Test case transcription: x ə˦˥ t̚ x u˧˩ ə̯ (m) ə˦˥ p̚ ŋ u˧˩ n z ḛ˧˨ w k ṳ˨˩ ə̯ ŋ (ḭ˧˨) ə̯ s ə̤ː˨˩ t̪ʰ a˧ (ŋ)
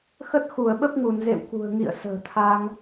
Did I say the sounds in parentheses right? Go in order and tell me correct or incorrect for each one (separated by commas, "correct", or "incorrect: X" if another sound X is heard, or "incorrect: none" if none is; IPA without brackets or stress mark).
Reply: incorrect: ɓ, correct, correct